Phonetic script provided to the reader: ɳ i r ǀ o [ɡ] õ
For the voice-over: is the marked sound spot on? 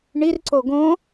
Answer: yes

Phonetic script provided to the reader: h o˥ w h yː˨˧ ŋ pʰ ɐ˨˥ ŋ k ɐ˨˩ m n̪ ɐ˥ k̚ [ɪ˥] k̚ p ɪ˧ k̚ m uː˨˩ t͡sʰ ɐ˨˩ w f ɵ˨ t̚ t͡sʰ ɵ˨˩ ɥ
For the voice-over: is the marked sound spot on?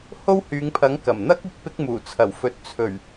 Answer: no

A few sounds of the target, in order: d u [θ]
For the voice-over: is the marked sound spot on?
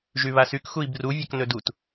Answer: no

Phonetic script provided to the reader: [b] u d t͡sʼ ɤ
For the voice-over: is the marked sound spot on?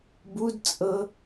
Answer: yes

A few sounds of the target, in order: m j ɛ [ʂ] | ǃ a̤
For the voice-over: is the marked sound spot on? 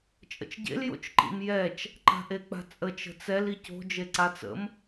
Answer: no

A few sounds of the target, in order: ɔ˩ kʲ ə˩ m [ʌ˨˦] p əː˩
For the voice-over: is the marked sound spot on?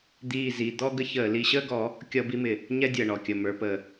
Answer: no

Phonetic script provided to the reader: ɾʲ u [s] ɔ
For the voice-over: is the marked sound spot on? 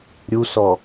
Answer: yes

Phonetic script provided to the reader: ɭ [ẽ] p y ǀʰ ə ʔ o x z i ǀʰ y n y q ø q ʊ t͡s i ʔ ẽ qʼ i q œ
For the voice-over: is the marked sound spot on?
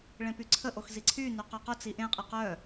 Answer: yes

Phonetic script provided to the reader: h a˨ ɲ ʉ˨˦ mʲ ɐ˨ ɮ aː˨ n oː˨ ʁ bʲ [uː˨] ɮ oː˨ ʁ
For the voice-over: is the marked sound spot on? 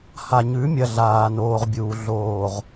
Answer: yes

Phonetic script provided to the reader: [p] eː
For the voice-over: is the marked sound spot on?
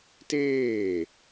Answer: no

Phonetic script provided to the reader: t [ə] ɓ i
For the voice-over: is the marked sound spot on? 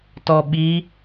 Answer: no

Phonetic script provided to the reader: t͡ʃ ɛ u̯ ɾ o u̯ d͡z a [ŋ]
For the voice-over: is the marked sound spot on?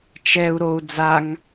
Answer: yes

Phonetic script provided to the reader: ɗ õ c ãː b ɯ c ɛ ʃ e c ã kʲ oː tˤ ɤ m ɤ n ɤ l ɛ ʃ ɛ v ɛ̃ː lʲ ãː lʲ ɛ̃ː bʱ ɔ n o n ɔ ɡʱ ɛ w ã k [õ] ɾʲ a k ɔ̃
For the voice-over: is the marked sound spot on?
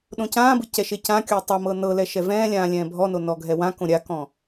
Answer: yes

